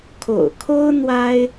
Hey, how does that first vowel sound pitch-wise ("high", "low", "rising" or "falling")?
low